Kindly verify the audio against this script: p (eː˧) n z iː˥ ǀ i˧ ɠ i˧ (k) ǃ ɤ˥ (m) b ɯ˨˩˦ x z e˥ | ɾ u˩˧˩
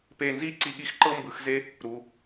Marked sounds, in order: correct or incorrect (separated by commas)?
correct, incorrect, correct